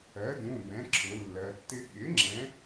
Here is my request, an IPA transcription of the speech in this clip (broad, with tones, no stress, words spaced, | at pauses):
ɜ˩˥dũ˩˧˩ bɛ̃˩˥ǁʰʊ˩˧lːɜ˩˧tːɪ˦ ɠɪ˩˥ ŋ͡ǁɛ̃˩˥